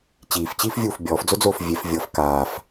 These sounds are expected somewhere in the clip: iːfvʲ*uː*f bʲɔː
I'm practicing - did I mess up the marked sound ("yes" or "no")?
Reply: no